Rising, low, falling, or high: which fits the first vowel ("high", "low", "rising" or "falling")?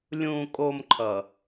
low